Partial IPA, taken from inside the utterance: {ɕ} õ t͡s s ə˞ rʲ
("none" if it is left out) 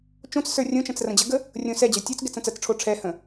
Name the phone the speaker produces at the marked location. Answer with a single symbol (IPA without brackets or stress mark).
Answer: t͡ʃ